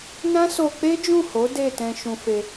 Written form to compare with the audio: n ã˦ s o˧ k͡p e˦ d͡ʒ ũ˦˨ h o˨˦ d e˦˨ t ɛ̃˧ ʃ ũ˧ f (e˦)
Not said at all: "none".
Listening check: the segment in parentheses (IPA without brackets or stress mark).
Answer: e˧